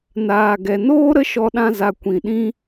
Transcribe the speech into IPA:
n aː˨ ɡ ɛ˨ n oː˦ ɾ ə˦ ʃ ɔ˧ ɗ ã˧ z a˨ kʷ ĩ˨ ɗ ĩ˦

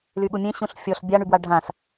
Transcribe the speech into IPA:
l y ɠ u mʲ ẽ ɕ ũ ɬ fʲ ɔ ɬ bʲ a ɳ y b w a ɖʱ ã s

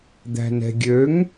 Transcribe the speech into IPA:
d̪ æ̤ n ɛ̤ ɡʲ ø ŋ

